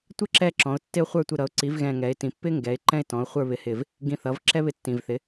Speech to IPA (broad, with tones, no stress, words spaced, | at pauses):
tʷɪ˥ǁɛ˦˨ǁɔ̃˩˧ʊ̯ tːɪ˦˨ʊ̯χʷə˞˦˨ tʷɪ˦˨ɾʌ˩˥ʊ̯ ǀi˩˥vɣɛ̃˨˩ ŋɛ˩˧ɪ̯tĩ˩˧pːɪ˥ ŋɡɛ˩˥ɪ̯ǃɛ̃˥ɪ̯tɔ̃˩˥ʊ̯ χʷə˞˦˨βɪ˩˥hɪ˨˩v | ɡĩ˦˨θʌ˩˥v ǁɛ˥βɪ˦˨tːĩ˨˩vθɪ˩˥